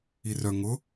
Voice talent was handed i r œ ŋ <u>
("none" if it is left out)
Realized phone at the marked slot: ʊ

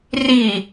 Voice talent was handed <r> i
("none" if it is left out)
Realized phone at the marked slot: r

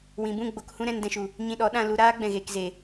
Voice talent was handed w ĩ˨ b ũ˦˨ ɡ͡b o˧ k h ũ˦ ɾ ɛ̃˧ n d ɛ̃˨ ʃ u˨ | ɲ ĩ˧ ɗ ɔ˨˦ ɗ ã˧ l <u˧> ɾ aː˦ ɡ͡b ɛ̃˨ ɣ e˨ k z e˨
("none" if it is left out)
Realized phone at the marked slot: u˧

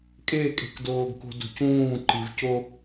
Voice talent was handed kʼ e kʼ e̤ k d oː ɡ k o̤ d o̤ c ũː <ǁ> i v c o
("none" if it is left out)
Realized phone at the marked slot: ǃ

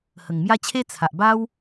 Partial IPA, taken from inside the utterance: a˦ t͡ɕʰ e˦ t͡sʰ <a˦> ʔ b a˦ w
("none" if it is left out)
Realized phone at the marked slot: a˨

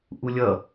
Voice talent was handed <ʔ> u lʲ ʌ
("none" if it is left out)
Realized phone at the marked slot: ʔ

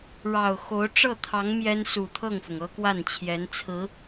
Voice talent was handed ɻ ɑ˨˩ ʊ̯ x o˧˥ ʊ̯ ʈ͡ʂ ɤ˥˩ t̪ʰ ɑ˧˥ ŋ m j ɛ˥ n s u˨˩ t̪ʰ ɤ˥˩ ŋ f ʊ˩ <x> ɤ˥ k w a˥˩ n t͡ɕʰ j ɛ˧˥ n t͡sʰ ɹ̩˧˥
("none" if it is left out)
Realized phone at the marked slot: ŋ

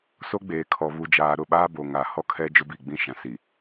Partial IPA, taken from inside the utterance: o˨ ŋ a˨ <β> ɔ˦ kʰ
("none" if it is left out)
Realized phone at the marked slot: h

